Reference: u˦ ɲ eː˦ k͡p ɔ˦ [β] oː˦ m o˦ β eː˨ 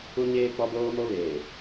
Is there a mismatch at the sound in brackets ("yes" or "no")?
yes